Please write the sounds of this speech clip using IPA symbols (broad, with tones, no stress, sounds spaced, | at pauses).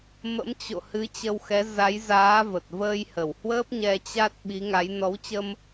m ə̰˧˥ m t͡ɕ o̰˧˨ h ɨ˨˦ t͡ɕ ə˧ w x ɛ˨˦ z a˨˦ j z aː˨˦ v ə˨˩ t̚ v əː˧ j h ə˧˩ w h w əː˦˥ p̚ ɲ ɛ˧ t͡ɕ a˦˥ t̚ ɓ i˨˦ ŋ a˨˦ j n ɔ˨˦ w t͡ɕ ə˧ m